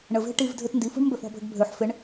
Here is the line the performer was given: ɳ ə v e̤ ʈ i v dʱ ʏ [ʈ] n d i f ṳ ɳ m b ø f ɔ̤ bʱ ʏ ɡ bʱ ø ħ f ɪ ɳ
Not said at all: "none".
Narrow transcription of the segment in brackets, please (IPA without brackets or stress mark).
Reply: t